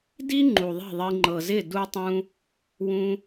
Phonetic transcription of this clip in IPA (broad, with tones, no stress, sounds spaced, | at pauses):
d i˦ ŋ͡ǃ u˨ ðˤ i̤˦˨ ðˤ i˧ ŋ͡ǃ ɤ˨ z ɪ˦˨ d u˦ tˤ ũ˦ | w ũ˧